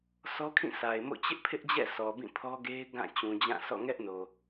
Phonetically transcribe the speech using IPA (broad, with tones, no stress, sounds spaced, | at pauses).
sʰ ɔ˦ kʰ ĩ˦˨ sʰ a˨ ɪ̯ m o̰˦˨ t͡ɕ ɪ˦ ʔ pʰ ɪ˦ ʔ d͡ʑ ɛ̰˦˨ s ɔ˨ b ĩ˦˨ pʰ ɔ˦ ɡ e˦ ɪ̯ ɡ ã˦˨ t͡ɕ ũ˨ d͡ʑ ã˦˨ s ɔ̰˦˨ ŋ ɛ˦ ʔ n o˨